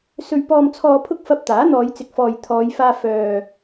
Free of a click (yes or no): yes